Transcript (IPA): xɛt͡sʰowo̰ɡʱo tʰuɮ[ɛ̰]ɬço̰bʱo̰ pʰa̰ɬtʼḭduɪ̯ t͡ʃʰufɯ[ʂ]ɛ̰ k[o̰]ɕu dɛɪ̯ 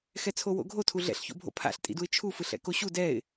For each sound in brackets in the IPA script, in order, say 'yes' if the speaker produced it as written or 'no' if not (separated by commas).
yes, no, no